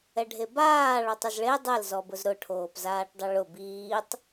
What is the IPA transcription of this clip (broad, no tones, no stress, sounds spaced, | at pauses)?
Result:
ɛ ɖʱ e b aː ɭ ɔ tˤ ɪ z ɭ e dˤ ɛ l z ɔ b ʊ z ɾ ʊ ʈʰ oː p z aː ʈ dˤ ɪ ɭ ʊ b iː tˤ